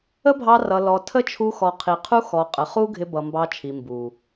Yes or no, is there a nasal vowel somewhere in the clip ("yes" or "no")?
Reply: no